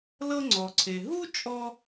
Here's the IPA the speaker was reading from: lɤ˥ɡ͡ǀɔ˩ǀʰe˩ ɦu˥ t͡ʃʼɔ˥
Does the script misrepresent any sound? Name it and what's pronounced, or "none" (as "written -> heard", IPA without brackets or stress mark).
ɡ͡ǀ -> ŋ͡ǀ